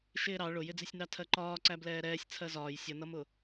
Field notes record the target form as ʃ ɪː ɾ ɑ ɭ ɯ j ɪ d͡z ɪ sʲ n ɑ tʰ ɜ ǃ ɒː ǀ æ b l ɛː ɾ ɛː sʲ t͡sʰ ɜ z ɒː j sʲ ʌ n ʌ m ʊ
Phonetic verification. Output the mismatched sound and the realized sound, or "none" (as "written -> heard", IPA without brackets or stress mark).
ɯ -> ʊ